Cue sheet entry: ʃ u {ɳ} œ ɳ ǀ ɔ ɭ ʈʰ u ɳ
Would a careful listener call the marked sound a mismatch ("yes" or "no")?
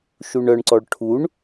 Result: no